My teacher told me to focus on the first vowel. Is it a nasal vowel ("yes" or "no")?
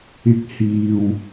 no